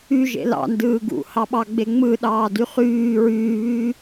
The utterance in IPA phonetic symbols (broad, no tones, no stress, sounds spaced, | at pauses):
y ʒ ḛ l ɑ̰ n d ɯː ɡ ṵ h ɑ ɓ ɑ ɡ͡b e ŋ͡m ɯ ɗ ɑː d y χ yː ɹ yː β yː